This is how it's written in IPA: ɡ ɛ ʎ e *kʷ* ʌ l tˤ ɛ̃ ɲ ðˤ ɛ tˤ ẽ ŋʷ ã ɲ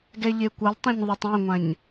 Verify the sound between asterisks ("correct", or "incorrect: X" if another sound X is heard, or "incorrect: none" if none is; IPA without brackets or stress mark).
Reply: correct